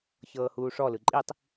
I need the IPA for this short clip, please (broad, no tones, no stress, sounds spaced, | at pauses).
ç ɤː h uː ʂ ɔ l ɯ ǃʼ i tˤ